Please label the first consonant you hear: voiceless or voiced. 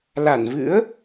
voiced